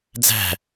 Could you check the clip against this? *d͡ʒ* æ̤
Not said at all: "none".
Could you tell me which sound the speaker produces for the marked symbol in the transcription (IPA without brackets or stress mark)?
d͡z